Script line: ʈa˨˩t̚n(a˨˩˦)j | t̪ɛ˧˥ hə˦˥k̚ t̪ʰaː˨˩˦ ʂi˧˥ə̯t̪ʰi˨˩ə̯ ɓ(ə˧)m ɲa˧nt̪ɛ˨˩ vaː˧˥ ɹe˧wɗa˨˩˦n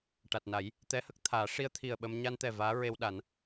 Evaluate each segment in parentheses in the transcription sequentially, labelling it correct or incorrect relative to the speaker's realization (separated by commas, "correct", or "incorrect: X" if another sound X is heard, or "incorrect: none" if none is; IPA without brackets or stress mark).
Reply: correct, correct